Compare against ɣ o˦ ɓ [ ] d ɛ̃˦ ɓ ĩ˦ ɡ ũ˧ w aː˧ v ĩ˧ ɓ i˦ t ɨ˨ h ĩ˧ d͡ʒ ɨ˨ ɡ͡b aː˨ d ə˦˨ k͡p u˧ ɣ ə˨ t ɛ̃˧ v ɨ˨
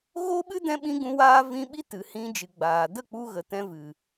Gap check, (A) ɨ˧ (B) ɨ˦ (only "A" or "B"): B